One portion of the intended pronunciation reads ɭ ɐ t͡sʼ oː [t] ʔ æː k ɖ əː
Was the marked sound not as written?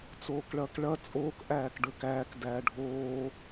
yes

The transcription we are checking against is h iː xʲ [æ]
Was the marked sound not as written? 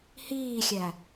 no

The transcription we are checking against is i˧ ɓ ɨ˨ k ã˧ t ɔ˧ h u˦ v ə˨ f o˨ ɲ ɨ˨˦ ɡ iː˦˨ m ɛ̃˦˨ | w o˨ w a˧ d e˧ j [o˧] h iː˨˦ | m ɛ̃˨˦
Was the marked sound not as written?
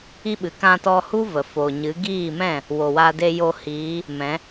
no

